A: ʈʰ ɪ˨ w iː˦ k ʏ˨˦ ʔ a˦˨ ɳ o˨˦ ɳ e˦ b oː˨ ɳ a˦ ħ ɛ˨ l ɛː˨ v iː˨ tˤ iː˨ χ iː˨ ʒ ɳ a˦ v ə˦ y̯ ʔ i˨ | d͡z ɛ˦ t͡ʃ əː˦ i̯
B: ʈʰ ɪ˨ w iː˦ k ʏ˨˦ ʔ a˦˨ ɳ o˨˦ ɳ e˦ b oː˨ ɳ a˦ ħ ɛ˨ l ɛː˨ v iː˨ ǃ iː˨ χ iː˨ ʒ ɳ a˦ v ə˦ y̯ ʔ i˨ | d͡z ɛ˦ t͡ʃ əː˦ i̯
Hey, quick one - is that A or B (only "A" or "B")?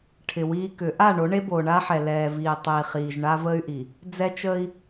A